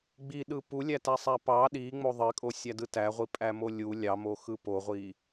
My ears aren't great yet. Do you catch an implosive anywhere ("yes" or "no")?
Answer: yes